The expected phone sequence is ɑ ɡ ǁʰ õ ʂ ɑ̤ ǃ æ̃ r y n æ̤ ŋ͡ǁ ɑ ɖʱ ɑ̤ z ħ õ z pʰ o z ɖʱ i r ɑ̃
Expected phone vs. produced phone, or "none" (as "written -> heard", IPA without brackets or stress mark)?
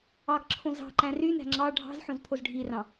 ʂ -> z